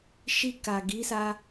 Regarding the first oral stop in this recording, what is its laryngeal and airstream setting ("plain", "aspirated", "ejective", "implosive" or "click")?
plain